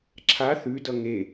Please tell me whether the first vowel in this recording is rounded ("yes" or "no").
no